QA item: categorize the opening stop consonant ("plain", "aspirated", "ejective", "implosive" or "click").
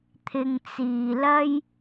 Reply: aspirated